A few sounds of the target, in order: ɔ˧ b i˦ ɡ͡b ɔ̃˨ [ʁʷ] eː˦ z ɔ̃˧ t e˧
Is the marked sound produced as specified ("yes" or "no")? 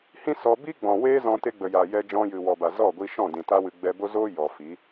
no